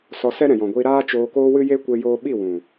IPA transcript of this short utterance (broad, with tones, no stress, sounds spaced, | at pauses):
s ɔ˧ s ɛ˦ ɾ ɛ̃˨ j ɔ̃˨ ɡʷ iː˧ ɾ aː˦ t͡ʃ oː˧ k oː˦ w ɨ˦ j e˦ kʷ e˧ j oː˧ ɓ i˦˨ w ũ˨